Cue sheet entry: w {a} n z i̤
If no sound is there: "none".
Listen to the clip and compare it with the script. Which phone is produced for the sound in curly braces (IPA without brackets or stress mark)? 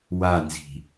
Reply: a